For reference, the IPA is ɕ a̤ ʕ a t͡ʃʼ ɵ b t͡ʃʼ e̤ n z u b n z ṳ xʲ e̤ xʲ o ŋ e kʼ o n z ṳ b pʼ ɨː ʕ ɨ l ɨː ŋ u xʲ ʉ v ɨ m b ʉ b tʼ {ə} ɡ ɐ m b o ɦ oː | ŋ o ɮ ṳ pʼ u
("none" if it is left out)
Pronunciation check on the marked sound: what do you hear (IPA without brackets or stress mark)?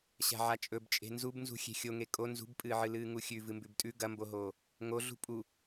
ʉ